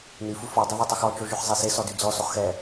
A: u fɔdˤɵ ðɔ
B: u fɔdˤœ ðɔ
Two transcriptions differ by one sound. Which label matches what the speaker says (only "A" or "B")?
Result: B